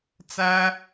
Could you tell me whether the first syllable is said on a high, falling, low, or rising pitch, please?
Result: high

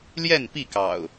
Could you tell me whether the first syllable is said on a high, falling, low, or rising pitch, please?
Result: falling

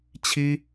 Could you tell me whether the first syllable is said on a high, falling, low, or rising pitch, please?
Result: high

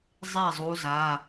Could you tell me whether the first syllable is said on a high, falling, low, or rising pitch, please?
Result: falling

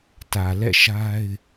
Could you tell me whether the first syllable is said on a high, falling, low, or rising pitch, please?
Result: low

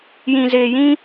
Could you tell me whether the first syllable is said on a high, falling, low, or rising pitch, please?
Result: low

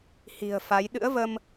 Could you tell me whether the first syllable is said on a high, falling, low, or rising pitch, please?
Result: low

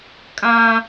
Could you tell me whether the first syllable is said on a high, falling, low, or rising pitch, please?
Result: high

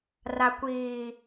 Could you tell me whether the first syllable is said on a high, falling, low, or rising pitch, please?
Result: low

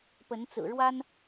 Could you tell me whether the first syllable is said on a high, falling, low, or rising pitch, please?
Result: rising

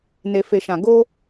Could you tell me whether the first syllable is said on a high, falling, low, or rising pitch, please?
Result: low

